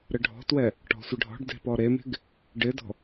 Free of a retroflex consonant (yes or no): no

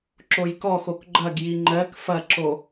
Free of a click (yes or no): no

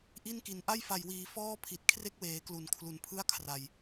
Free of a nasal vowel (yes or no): yes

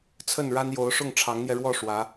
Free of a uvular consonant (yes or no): yes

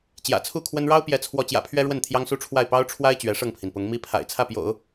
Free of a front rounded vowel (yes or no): yes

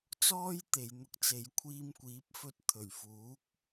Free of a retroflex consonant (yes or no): yes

